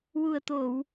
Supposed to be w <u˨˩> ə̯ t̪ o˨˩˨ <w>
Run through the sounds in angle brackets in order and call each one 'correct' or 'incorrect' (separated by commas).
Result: correct, correct